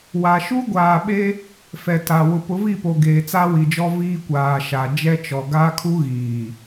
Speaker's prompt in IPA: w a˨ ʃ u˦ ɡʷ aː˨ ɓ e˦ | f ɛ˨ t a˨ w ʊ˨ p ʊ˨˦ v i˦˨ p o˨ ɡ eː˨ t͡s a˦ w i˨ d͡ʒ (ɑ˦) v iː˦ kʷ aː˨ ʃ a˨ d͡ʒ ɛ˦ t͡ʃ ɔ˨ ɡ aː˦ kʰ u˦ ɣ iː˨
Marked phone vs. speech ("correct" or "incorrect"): incorrect